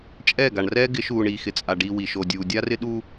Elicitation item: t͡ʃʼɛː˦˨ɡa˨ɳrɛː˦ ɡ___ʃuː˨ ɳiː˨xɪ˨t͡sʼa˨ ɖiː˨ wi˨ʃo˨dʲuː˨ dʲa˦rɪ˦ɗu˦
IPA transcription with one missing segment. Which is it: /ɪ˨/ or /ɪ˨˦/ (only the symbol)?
ɪ˨˦